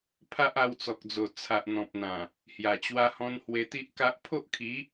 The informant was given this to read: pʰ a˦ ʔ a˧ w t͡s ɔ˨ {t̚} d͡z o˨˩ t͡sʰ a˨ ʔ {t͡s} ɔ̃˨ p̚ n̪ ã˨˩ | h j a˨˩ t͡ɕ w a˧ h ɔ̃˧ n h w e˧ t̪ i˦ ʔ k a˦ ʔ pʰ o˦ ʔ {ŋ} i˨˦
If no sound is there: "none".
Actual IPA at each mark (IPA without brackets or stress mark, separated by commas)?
k̚, n̪, kʰ